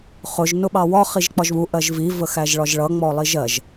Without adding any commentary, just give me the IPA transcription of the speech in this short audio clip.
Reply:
χ ʊ ʒ n ʊ ɓ ɑ w ɒ χ i ʒ k͡p ɒ ʒ β u ʔ ɜ ʒ v i v ə x æ ʒ ɭ ɒ ʒ ɭ ʌ ŋ͡m ɔ lˠ i ʒ ɜ ʒ

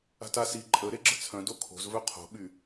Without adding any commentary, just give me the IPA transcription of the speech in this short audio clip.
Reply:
a̤ t a s i ǃʼ ə ɾ e ɡ͡ǁ ə̤ t͡sʰ œ̃ d o kʰ o̤ z v œ qʰ o̤ ɓ y

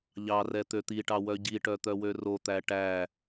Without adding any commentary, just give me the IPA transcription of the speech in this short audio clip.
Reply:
ʎ ɑ r ɛ t̪ ø t̪ i ʈ ɑ w œ ɟ i ʈ œ t̪ œ w ø r o t̪ æ ʈ æ

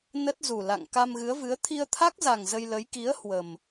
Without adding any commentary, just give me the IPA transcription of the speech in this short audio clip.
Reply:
n ə˦˥ t̚ z u˨˩ l a̰˧˨ ŋ k a˧ m ɣ ɨ˨˦ ə̯ v ɨ˨˦ ə̯ t̪ʰ i˧ ə̯ t̪ʰ a˦˥ k̚ z a˨˩ ŋ z ə˧ j l ə˨˦ j k i˨˦ ə̯ h w ə˨˩ m

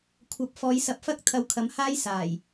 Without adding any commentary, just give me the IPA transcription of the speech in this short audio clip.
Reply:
kʷʰ ɐ˨˥ p̚ f ɔː˨˧ j s ɐ˨˥ p̚ f ɐ˥ k̚ t̪ʰ ɐ˧ w kʰ ɐ˨˥ m h aː˥ j s aː˨˩ j

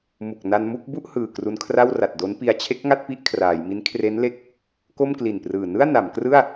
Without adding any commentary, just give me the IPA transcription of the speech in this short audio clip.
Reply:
m u˨˩ k̚ n a˧ n m u˥˩ k̚ b u˥˩ ʔ h ɯː˨˩ k r u˧ n kʰ r a˥˩ w r a˨˩ t̚ d o˦˥ n p i˧ a̯ t͡ɕʰ e˦˥ k̚ ŋ a˥˩ t̚ p i˦˥ ʔ kʰ r aː˩˦ j m i˦˥ n kʰ r e˦˥ n l e˦˥ k̚ | k o˥˩ m k l i˨˩ n p r ɯː˨˩ n ɯ˥˩ a̯ n a˩˦ m k r ɯ˥˩ a̯

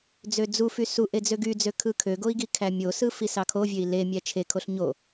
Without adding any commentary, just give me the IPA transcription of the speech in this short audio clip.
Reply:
d͡z ø d͡z u f y s u ʔ e d͡z ø ɡ y d͡z ø kʰ ɯ kʰ ø ɡ o i̯ ɡ i kʰ æ mʲ o s ɯ f i s ɑ kʰ o vʲ ø i̯ l e mʲ æ t͡ʃʰ e kʰ o ɬ ɲ o

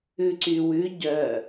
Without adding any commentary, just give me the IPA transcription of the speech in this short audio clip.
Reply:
ʉ ǀ y w ʉ ɟ œ

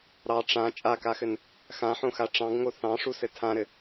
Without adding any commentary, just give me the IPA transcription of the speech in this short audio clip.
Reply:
ɾ ɑ ʈ͡ʂ ã t͡ʃʼ a k a x ɘ n | x ã ħ õ x a ʈ͡ʂ ɑ̃ ɡ ŋ o θ ɑ̃ ʂ u s ɘ tʰ ã ɾ ɘ

